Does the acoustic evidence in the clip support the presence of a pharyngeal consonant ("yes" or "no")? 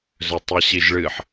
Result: yes